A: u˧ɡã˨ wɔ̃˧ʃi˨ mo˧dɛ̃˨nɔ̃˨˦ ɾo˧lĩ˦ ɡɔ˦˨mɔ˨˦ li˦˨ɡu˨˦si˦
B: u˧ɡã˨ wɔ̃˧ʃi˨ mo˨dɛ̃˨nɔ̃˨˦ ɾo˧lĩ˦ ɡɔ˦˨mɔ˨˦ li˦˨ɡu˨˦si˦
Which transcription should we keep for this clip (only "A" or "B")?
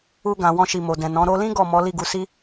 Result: B